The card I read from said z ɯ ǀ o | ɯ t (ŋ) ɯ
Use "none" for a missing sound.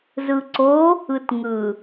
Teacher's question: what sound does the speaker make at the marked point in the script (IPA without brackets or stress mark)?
ŋ